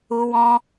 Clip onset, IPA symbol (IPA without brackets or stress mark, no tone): u